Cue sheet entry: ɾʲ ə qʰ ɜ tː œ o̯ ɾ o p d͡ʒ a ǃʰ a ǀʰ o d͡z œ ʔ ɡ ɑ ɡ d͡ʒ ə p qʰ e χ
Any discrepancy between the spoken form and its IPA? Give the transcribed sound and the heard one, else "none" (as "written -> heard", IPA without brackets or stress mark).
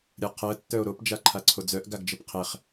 ɑ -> a